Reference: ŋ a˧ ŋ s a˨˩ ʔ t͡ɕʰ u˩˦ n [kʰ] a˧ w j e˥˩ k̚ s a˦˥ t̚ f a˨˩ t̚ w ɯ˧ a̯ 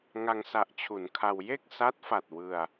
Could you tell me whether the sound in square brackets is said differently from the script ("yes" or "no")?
no